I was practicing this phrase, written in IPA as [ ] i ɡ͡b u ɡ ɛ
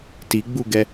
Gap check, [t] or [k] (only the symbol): t